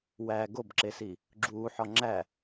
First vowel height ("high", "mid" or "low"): low